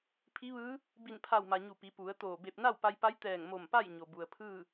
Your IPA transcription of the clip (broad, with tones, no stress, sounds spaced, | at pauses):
pʰ i˧˥ ʋ ɯː˧˥ | b i˧˩ n pʰ a˧˩ w m a˩ ɲ u˧˩ p i˩˧ p u˩˧ ə̯ t̪ oː˧˩ b e˧˩ p̚ n a˥˨ w p a˧ j p a˧˥ j t̪ ɛː˧˩ ŋ m o˧˩ m p a˥˨ j ɲ o˩ b u˩ ə̯ pʰ ɯː˥˨